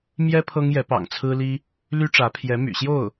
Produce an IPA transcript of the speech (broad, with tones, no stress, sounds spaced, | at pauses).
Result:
m j ɛ˥ pʰ ɤ˥ ŋ j ɛ˧˥ p ɑ̰˨˩ ŋ t͡sʰ ɹ̩˥ l i˥ | l y˥ ʈ͡ʂ ä˧˥ pʰ j ɛ˧˥ m y̰˨˩ ɕ j o˥˩ ʊ̯